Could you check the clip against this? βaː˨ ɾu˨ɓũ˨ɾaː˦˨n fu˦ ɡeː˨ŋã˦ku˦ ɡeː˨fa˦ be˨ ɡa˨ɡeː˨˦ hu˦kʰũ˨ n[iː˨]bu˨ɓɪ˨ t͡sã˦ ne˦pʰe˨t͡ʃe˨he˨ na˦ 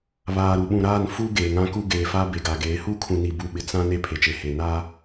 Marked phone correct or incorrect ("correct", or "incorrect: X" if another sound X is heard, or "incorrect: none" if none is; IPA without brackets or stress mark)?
incorrect: i˨